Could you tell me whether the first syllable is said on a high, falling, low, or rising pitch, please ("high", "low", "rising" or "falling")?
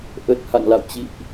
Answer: low